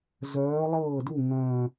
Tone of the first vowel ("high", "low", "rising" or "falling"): rising